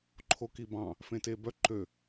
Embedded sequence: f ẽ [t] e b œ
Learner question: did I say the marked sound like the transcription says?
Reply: yes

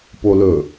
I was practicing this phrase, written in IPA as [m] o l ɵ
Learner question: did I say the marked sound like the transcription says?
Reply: no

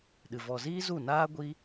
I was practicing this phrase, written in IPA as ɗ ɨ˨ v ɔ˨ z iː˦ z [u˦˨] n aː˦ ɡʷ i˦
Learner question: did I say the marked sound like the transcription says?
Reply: yes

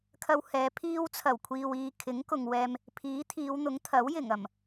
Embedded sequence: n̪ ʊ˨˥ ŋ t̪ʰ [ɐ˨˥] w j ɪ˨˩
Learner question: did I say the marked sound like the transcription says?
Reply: yes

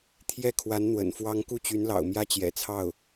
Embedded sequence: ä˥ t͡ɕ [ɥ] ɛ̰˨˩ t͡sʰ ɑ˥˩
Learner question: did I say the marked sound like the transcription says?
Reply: no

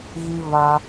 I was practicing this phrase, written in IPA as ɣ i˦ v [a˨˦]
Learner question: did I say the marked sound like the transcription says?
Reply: no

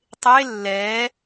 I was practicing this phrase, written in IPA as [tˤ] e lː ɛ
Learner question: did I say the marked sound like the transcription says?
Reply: yes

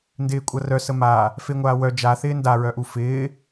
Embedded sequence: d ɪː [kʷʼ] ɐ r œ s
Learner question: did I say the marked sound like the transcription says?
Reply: yes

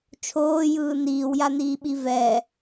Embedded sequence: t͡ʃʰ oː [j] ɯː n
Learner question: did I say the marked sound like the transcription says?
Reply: yes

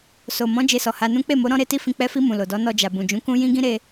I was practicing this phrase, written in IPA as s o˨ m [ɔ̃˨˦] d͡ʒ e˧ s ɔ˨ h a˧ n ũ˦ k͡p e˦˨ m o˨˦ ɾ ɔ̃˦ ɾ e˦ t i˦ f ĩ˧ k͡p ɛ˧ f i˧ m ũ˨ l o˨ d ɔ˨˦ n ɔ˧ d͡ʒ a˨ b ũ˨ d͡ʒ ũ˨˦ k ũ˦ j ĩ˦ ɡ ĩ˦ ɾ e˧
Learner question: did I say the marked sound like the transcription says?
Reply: yes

